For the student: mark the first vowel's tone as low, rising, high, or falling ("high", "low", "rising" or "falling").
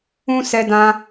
high